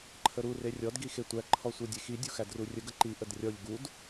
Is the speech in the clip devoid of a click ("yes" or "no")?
no